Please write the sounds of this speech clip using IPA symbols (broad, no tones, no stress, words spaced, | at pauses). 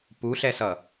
puɬɛsʌ